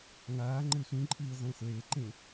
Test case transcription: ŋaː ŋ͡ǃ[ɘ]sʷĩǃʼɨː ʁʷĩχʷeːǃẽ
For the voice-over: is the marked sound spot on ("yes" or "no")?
yes